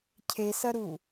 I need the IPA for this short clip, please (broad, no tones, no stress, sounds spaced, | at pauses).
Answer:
cʰ e s ɐ ɾ u